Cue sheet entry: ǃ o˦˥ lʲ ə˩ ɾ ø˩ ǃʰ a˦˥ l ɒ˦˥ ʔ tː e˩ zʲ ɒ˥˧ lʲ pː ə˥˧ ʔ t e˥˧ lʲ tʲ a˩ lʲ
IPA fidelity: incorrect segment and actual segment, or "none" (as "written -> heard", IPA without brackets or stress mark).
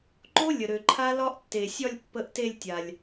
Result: zʲ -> sʲ